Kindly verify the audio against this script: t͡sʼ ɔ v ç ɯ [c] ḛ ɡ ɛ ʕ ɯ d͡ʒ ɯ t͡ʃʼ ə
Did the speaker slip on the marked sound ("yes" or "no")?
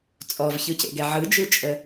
no